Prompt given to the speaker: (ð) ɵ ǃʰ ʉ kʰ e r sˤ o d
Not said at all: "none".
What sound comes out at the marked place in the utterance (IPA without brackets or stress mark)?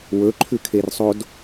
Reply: w